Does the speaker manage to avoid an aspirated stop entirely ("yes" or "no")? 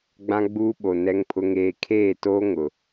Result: no